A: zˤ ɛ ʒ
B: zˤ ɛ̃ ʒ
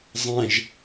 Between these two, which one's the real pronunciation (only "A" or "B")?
B